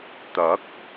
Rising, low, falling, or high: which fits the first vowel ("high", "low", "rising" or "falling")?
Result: rising